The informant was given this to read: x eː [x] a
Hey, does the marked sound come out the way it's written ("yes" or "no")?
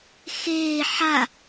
no